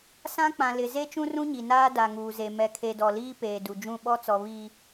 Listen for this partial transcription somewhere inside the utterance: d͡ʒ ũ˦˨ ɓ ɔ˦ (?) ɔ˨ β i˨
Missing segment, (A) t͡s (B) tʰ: A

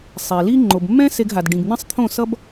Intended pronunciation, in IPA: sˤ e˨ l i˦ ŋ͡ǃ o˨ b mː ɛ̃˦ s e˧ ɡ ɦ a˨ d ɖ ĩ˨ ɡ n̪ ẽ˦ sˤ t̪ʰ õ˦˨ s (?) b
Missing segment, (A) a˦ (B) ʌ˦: B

